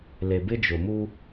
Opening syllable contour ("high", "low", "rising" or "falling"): low